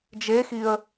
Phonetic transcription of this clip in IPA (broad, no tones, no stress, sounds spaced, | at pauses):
d͡ʒ e x i ə̯